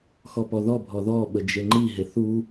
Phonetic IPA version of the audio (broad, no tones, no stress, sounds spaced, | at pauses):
x ɔ p ɔ ð ɔ bʱ ɔ ð ɔ ɓ ə d͡ʒ e ŋ͡ǃ i ɦ e θ u